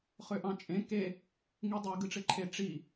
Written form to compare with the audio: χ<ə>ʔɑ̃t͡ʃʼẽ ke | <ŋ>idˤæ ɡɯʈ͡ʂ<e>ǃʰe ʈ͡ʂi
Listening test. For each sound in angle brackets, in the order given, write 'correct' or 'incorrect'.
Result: incorrect: ø, correct, correct

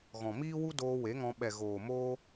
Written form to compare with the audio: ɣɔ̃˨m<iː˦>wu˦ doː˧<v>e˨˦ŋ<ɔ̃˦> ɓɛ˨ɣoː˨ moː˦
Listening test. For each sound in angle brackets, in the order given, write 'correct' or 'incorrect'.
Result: correct, incorrect: w, incorrect: ɔ̃˧

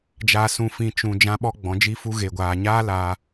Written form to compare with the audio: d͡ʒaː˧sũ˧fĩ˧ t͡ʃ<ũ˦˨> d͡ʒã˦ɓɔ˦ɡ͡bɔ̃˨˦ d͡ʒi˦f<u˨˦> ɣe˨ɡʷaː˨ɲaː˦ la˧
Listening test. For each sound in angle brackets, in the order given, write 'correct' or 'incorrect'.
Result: incorrect: ũ˨, incorrect: u˦

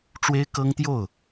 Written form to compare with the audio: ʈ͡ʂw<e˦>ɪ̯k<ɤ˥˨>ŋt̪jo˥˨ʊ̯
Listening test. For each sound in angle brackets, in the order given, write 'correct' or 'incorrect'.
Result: correct, incorrect: ɤ˦

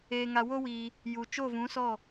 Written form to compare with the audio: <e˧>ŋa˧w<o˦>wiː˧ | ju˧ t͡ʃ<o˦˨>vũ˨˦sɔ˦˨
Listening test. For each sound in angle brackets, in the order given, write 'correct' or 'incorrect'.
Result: incorrect: eː˧, correct, correct

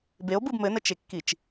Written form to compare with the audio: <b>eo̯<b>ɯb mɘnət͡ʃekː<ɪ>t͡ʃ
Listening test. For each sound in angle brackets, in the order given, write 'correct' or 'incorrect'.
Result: correct, correct, incorrect: i

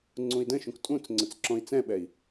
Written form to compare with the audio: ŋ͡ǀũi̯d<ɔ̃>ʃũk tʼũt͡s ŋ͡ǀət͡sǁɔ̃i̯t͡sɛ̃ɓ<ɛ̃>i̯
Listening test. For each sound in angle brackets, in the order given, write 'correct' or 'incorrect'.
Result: incorrect: ə̃, incorrect: ɛ

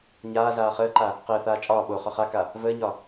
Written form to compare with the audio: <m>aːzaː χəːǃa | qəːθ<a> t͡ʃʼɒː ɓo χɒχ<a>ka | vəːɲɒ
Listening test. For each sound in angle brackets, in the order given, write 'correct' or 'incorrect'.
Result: incorrect: ɲ, incorrect: aː, correct

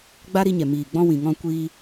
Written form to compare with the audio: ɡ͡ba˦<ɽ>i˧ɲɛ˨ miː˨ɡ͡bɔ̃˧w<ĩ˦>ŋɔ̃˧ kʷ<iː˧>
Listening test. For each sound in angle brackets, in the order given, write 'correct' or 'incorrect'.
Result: incorrect: ɾ, incorrect: ĩ˨, correct

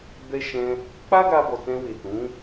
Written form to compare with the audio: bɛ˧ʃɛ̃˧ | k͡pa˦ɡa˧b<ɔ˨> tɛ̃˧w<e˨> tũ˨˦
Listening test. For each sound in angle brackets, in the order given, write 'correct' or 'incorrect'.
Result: correct, correct

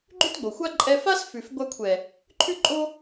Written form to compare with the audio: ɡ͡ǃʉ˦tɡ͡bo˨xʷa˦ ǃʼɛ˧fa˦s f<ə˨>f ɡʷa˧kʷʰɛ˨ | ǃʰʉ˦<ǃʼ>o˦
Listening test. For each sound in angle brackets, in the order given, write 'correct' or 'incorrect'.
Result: incorrect: ʉ˨, correct

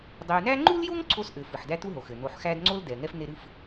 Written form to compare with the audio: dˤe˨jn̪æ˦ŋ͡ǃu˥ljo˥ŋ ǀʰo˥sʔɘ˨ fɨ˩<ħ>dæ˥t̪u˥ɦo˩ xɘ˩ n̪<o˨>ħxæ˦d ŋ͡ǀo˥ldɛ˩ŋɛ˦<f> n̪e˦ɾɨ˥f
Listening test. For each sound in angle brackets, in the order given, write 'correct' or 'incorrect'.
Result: correct, correct, correct

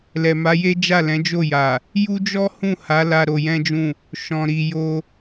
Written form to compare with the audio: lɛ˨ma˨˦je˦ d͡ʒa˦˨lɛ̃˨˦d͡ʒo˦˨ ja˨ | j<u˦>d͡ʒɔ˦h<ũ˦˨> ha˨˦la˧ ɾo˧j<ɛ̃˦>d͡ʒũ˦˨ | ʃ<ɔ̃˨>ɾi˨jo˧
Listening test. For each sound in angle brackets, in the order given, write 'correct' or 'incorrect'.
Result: correct, correct, correct, correct

